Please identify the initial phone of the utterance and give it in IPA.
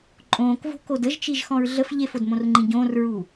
ǃʼ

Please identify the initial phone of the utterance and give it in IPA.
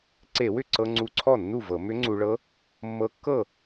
ǀ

